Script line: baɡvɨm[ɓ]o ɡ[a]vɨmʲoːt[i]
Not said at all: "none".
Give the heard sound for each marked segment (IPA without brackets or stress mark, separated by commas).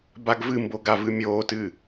b, a, ɨ